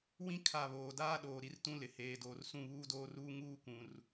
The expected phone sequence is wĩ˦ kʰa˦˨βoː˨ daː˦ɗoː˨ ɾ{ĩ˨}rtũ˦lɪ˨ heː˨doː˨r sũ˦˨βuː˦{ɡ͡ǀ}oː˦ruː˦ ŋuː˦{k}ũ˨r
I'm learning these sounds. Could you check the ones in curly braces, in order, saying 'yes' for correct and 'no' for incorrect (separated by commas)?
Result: no, no, yes